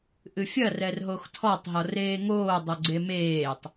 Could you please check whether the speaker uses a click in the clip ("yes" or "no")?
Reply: yes